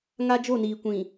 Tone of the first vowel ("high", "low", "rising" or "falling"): high